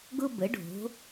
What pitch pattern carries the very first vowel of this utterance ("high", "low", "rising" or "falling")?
high